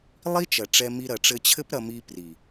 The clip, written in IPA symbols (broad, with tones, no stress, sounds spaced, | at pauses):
lˠ i˦ t͡ʃ ɐ˨ ʈ͡ʂ ɛ˧ m i˧ ɾ ɐ˨ ʈ͡ʂ ɘ˧ t͡ɕʰ ɘ˦ p ɾ ɐ˧ m i˧ p r i˨